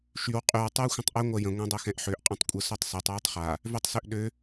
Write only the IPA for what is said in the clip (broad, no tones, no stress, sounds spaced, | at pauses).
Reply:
ʃ y w qʼ y w tˤ y w xʷ ə̃ tˤ ʔ ø ŋʷ ɜ j ə̃ ŋʷ ɛ̃ dˤ ø x ɛ̃ ʔ ħ ø ʔ qʼ ɛ̃ tˤ kʷʼ ə s ø tˤ s ɜ tˤ w y tˤ χ a | v ø tˤ s ø ʔ ɗ ø